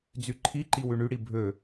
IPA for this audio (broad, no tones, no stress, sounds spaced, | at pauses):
d͡z y ǃʰ i ǃ i w ʉ ɳ y ɽ i bʱ ø